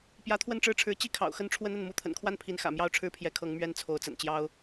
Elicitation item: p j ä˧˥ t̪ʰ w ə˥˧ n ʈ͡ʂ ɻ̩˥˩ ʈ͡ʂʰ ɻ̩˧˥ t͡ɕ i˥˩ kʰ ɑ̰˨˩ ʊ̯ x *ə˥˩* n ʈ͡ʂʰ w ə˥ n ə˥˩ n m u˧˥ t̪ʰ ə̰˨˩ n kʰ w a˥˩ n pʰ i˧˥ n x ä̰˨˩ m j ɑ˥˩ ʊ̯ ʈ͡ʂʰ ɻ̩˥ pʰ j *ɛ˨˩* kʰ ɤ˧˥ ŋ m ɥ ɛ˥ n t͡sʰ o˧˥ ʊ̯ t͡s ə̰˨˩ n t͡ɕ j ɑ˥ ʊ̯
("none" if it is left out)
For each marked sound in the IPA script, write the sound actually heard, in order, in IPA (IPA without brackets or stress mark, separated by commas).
ə˥˩, ɛ˧˥